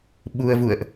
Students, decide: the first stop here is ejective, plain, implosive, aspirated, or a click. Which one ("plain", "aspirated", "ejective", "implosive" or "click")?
implosive